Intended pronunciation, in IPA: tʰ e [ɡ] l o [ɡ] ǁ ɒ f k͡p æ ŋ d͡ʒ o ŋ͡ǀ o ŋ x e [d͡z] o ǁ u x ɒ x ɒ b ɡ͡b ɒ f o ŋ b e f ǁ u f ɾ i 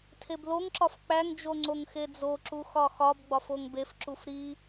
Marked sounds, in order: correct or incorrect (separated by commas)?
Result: incorrect, incorrect, correct